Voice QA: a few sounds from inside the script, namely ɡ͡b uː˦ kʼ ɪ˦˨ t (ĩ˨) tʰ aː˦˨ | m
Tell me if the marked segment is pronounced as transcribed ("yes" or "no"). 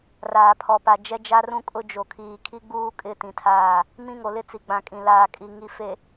yes